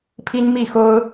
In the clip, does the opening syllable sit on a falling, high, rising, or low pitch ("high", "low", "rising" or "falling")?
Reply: high